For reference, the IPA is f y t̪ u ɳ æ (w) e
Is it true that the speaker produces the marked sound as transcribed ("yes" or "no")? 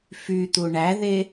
no